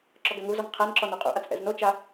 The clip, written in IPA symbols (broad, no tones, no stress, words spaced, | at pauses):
ǁɔɡæŋuzɔŋ qʰænǁɔn oqʼṵʔat͡s ʔɛ̰znot͡ʃa